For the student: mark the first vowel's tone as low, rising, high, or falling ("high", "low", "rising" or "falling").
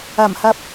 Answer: low